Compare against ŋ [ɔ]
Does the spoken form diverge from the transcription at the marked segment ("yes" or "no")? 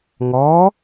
no